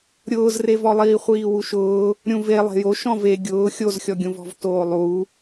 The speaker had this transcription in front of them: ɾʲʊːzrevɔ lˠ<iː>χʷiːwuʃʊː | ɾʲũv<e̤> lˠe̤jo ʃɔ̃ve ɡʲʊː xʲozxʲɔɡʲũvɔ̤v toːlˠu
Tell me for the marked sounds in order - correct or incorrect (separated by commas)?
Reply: correct, incorrect